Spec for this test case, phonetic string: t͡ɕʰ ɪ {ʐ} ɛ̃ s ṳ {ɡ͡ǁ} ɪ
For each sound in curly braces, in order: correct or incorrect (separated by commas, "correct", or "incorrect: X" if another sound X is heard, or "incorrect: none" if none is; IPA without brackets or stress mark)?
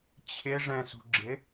correct, correct